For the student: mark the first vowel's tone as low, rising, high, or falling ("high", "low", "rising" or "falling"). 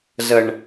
low